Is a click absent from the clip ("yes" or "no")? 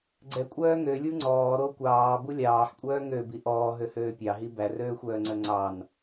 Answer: no